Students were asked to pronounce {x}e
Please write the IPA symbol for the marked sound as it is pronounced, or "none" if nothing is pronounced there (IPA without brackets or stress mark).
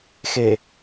x